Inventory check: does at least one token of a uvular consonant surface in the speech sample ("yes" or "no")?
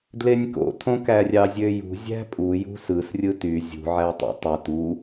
no